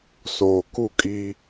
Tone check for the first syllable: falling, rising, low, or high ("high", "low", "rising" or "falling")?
low